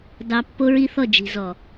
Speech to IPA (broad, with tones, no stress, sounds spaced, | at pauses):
d ɑ˨ pː o˦ ɹ i˦ θ ɔ˦˨ d͡ʒ i̤˨ z ɔ˨